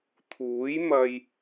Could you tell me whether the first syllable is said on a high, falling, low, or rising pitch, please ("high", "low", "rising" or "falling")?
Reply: rising